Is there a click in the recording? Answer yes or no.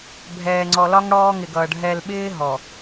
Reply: yes